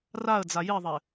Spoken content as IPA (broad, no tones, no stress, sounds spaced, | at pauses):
r a ə̯ d͡z a j i ðˤ e